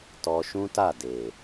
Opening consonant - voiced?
no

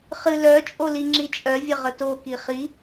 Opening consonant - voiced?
no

